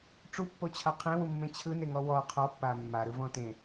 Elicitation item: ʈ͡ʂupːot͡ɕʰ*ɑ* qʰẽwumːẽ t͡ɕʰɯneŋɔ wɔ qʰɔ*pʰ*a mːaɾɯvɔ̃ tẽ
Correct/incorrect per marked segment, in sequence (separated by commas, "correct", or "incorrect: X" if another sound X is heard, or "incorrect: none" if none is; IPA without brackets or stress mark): incorrect: a, incorrect: pː